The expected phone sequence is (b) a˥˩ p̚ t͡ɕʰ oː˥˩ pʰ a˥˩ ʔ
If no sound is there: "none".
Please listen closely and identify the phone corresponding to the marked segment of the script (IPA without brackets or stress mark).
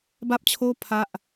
b